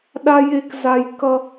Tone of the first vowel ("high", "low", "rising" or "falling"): high